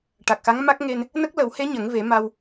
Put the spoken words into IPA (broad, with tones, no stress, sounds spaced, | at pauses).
ʈ a˨˩ k̚ x a˧˥ ŋ m a˦˥ k̚ ŋ e˧ n | n ə˦˥ k̚ l ə˨˩˦ w h e˧˥ ɲ ə˨˩˦ ŋ v e˨˩˦ m a˧ w